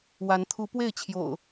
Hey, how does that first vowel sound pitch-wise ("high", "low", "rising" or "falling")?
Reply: rising